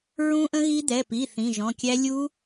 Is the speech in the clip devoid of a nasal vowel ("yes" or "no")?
no